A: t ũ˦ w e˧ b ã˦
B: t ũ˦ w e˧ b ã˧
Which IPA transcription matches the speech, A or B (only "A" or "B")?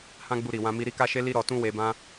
A